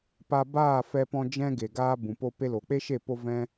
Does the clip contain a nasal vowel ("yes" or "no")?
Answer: yes